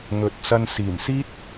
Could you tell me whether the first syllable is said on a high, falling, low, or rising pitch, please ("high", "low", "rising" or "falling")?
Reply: low